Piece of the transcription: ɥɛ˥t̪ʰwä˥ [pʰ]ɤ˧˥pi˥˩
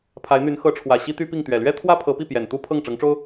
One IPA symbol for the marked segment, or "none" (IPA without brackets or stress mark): pʰ